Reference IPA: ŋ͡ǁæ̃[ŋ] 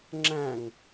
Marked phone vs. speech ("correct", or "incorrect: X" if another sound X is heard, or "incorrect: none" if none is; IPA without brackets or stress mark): correct